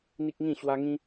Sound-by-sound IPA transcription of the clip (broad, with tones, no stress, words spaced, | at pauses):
n̪i˦k̚ŋĩ˥˧ ɕwa˧ ŋĩ˧